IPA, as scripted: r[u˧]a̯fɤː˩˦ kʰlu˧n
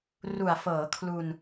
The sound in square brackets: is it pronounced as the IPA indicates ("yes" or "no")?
no